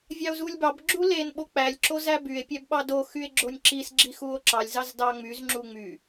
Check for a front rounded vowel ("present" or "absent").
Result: present